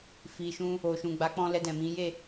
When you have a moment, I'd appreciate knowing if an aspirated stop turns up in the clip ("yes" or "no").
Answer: no